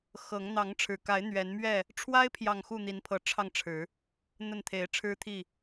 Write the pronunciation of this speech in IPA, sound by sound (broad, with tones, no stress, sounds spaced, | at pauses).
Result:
x ɤ˨˦ ŋ n̪ ɑ˨˦ ŋ ʈ͡ʂʰ ɻ̩˨˩ k a˨˦ ɪ̯ n̪ ɥ ɛ˨˦ n m ɥ ɛ˥˨ | ʈ͡ʂʰ w a˦ ɪ̯ pʰ j ɑ˨ ŋ x u˥˨ n̪ i˨˦ n pʰ ɤ˨˦ ʈ͡ʂʰ ɑ˥˨ ŋ ʈ͡ʂʰ ɻ̩˨˦ | n̪ ə˥˨ n t̪ʰ e˨˦ ɪ̯ ʈ͡ʂʰ ɻ̩˦ t̪ʰ i˥˨